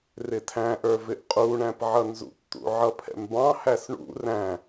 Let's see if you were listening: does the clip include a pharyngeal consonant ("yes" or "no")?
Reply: yes